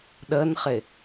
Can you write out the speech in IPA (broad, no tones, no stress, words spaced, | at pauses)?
ɗənχɪ